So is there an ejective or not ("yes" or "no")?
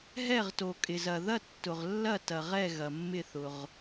yes